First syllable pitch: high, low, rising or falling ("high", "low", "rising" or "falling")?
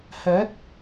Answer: rising